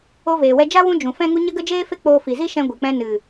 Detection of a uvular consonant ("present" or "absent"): absent